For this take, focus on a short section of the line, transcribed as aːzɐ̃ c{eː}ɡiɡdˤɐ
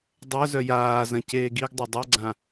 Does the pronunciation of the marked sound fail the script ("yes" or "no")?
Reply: no